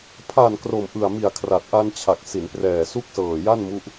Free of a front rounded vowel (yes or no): yes